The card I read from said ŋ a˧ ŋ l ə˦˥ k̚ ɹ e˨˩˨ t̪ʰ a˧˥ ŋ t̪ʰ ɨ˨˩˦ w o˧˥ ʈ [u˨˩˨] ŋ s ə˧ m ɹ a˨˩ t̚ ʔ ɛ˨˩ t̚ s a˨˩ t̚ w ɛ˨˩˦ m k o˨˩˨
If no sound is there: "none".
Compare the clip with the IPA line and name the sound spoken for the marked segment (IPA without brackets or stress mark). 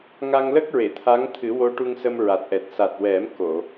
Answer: u˧